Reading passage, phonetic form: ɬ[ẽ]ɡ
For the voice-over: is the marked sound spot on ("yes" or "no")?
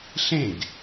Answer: yes